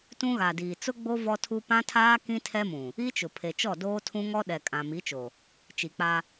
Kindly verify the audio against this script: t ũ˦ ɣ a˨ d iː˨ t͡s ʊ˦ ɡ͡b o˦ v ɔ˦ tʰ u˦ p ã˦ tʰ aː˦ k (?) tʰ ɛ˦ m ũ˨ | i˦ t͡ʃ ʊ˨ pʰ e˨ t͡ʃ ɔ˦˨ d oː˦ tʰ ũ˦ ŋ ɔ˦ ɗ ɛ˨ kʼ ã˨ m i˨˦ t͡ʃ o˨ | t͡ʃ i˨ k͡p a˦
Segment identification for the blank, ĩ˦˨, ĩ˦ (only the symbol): ĩ˦